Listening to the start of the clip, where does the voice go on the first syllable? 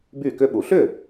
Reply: falling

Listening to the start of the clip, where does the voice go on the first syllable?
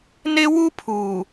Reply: high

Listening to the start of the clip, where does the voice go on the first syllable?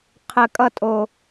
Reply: low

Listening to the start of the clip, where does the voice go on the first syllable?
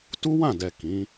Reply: high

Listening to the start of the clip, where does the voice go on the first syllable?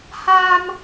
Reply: high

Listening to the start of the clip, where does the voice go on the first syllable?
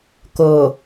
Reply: low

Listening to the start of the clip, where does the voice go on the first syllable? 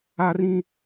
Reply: high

